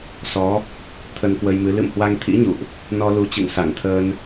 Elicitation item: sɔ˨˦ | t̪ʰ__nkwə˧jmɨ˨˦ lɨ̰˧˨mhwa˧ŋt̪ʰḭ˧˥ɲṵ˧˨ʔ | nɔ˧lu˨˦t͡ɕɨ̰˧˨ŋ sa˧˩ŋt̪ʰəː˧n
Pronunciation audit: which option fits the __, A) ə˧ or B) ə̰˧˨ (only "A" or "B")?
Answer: A